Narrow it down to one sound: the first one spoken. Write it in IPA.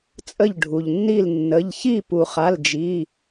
t͡sʼ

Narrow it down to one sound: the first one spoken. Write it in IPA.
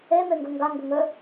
e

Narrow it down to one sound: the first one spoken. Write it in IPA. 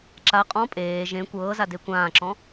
ǁ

